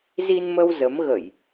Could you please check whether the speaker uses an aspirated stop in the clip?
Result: no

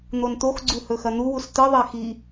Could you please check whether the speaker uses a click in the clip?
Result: yes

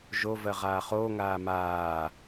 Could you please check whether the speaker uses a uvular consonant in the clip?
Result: yes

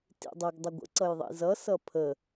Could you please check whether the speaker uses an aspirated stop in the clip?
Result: yes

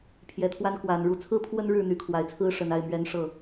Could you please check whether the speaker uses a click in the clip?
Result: no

